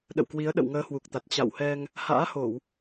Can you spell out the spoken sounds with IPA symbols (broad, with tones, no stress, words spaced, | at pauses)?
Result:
ɗə̰˧˨wkwi˨˦ə̯ɗə̰˧˨w ŋəː˨˦hwu˨˩k̚t̪a˨˩t̚ t͡ɕa̰˧˨whɛ˧ŋ | ha̰ː˧˥ho˧˩˨w